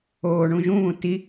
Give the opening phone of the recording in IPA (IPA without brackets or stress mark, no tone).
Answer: oː